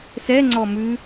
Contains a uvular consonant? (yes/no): no